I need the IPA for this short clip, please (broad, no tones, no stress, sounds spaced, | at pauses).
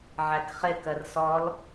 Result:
ʕ æ k χ ɪ k ɜ r s ɔ l